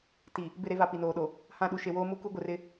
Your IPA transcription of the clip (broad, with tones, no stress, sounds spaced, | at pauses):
t i˨ | b ɪ˦˨ ɾ e˦ v a˨ p i˨ n oː˨ ɗ o˨ | h ã˦˨ ɗ u˨ ʃ e˨ w oː˦ m u˦ k u˦ ɡʷ ɪ˨ r ɪ˦